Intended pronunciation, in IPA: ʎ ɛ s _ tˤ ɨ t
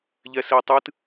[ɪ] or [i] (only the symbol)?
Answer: i